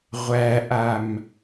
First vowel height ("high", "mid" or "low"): low